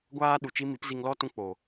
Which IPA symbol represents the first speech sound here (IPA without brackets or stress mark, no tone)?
ɡʷ